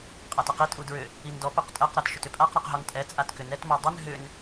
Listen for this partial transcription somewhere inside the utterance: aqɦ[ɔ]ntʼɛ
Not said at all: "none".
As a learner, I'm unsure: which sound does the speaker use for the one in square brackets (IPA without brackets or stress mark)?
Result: ɔ